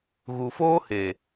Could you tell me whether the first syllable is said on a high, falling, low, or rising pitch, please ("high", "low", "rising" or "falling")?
low